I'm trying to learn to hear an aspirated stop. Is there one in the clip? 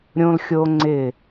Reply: no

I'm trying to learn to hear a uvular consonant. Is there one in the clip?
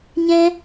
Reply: no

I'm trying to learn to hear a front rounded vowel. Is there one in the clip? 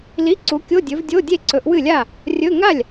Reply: no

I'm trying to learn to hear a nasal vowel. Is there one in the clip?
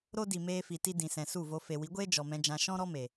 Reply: yes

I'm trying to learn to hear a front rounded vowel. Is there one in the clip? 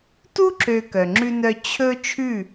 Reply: yes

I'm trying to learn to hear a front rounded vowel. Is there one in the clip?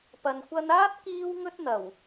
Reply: no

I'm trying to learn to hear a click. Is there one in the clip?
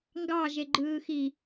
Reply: yes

